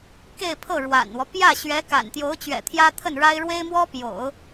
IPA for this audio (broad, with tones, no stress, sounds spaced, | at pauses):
k e˥˧ ɪ̯ pʰ ɤ˥˩ ɻ w a̰˨˩ n w ɔ˦ p j ä˥˩ ɕ ɥ ɛ˧˥ k a̰˨˩ n t̪ j o˧˥ ʊ̯ t͡ɕ ɥ ɛ̰˨˩ t̪ʰ j ä˥ t̪ʰ ə˥˩ n ɻ a˥ ɪ̯ ɻ w e˥ ɪ̯ m w ɔ˥ p j o̰˨˩˦ ʊ̯